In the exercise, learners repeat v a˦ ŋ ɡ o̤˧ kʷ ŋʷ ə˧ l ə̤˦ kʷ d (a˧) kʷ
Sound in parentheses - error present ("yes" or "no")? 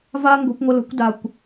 no